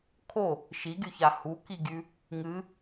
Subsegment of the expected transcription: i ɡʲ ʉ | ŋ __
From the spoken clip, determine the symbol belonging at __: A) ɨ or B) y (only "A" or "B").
A